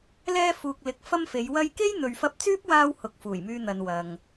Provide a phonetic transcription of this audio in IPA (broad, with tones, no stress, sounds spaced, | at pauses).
l ɛː˧ f uː˨ k̚ l ɪ˨ k̚ f ɐ˥ m f e˨˧ j w ɐ˥ j k e˥ j n̪ ɵ˨ ɥ f ɐ˧ p̚ t͡s yː˥ p̚ w aː˥ w h ʊ˨ k̚ f uː˨˩ j m yː˧ n̪ ɐ˨ n w ɐ˨ ŋ